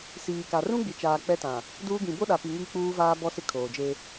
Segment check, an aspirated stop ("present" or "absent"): present